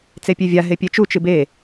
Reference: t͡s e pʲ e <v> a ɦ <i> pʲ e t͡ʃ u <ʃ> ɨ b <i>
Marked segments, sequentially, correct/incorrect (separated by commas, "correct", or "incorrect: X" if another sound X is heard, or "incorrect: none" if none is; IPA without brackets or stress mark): incorrect: vʲ, incorrect: e, incorrect: t͡ʃ, incorrect: e